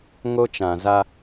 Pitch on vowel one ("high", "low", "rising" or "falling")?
high